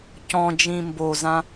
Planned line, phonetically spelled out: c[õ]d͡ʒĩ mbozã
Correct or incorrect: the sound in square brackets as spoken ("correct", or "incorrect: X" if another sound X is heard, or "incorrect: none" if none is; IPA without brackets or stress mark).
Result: incorrect: ɔ̃